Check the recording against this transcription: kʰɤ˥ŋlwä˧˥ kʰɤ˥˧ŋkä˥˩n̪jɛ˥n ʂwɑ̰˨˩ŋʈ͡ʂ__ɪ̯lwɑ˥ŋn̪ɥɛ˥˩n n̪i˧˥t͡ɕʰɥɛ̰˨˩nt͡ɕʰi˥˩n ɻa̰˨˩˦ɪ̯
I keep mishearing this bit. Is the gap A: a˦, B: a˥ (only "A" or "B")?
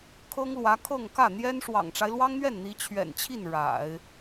A